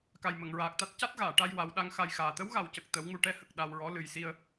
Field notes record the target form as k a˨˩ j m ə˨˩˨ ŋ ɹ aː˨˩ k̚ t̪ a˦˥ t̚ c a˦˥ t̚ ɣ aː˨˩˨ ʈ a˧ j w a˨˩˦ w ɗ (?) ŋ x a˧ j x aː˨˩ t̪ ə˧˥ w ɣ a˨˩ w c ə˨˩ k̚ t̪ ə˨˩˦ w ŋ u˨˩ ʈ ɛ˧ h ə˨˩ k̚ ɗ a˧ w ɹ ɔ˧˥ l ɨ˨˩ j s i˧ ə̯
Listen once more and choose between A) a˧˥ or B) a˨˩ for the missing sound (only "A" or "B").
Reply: A